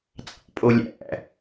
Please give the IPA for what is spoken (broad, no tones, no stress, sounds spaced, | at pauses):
t͡sʼ ɑ̰ pʼ o lʲ æ̰